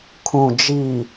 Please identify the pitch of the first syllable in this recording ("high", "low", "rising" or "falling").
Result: low